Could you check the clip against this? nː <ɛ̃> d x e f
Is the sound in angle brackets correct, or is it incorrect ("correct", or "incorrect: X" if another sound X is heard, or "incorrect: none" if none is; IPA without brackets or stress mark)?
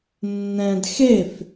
correct